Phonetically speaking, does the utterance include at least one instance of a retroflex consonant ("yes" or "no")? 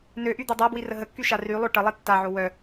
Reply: yes